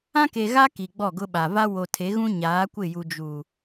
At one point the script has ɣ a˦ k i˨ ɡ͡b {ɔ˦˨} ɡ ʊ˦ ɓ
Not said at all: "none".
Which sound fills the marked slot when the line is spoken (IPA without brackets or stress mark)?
ɔ˦˨